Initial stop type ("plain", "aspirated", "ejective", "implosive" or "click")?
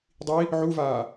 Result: plain